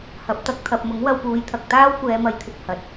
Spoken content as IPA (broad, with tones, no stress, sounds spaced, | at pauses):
h ɐ˨ p̚ t̪ ɐ˧ k̚ t̪ʰ ɐ˨ p̚ m ʊ˨˥ ŋ w ɐ˧ w p uː˨˧ j t̪ʰ ɐ˨ k̚ t̪ aː˥ w kʷ ɛː˨˧ m ɐ˧ j t̪ʰ ɪ˧ k̚ h ɐ˨ t̚